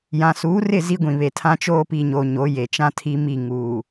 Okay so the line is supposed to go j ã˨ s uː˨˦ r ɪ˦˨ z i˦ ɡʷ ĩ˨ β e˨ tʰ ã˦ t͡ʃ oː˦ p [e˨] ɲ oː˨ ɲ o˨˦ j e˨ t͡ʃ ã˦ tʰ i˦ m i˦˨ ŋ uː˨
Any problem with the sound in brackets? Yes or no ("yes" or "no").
yes